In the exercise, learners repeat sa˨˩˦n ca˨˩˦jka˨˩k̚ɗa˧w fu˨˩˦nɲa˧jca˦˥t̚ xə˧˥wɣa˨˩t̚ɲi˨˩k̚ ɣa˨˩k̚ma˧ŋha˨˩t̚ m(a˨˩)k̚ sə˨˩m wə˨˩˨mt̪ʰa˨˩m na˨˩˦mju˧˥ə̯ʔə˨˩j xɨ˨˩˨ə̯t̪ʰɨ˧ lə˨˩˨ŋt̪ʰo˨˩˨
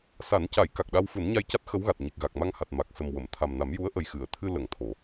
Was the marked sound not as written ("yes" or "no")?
no